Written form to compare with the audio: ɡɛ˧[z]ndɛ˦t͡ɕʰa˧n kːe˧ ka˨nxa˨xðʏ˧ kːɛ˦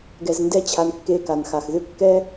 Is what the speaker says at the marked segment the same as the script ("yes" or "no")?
yes